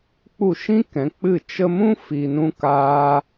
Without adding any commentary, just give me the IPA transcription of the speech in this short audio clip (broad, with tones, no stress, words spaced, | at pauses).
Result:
k͡pu˦˨ʃĩ˦kɛ̃˨˦k͡pɨ˦˨ t͡ʃə˧mũ˦ fi˧nũ˦kaː˦